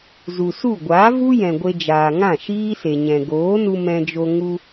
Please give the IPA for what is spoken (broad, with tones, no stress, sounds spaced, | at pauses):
z u˨ s u˦˨ ɡʷ aː˨˦ v u˦ j ɛ̃˨ ɡʷ e˧ d͡ʒ aː˨ ŋ ã˦˨ ʃ iː˦ s e˨ ɲ ɛ̃˨ ɡ oː˨˦ n u˧ m ɛ̃˧ d͡ʒ o˧ ŋ u˧